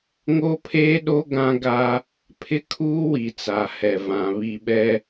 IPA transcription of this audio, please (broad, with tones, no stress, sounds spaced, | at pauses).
ŋ o˦ pʰ eː˦ ɗ o˦ ɡ ã˦ ɡ a˦ | pʰ ɪ˦ kʰ uː˦ w i˨ t͡s a˨ h ɛ˨ v ã˨ β i˨ ɓ ɛ˦